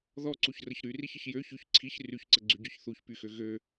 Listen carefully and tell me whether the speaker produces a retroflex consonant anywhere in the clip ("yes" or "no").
no